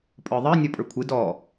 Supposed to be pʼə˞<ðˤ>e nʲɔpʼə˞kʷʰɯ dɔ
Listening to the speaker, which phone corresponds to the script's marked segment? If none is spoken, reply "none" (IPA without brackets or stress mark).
ðˤ